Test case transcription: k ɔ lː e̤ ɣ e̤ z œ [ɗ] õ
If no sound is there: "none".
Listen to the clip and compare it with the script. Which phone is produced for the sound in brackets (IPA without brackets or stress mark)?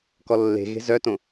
t